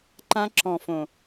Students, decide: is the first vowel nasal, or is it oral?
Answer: nasal